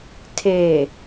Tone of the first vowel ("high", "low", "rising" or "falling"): low